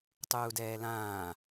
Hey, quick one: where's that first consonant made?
tongue tip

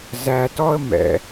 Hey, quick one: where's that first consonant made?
tongue tip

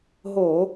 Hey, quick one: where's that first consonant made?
throat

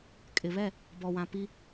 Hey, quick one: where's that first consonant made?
velum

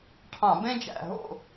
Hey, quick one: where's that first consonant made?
retroflex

